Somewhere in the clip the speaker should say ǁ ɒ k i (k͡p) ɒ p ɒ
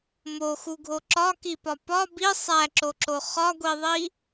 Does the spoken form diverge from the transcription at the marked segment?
yes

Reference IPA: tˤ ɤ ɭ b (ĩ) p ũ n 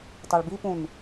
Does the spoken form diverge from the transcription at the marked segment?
yes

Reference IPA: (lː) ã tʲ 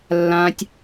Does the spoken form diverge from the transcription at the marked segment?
no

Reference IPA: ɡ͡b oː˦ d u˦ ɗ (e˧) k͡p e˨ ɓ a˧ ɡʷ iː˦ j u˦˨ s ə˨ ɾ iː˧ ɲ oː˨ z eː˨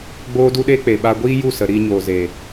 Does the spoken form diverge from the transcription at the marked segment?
yes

